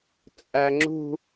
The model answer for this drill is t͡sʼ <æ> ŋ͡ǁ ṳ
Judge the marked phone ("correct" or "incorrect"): correct